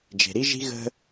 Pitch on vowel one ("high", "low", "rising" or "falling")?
low